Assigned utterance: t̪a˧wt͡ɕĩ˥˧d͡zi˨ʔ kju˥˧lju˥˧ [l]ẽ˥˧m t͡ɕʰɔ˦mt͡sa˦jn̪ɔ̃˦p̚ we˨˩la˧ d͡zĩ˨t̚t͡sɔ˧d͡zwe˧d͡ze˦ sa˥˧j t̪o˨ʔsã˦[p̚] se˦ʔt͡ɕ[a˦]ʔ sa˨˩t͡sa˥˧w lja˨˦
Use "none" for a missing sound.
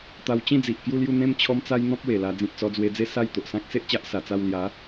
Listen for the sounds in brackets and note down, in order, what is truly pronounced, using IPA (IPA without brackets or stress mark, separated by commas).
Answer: n̪, k̚, a˦